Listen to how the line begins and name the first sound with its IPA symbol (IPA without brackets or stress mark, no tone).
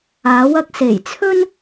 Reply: aː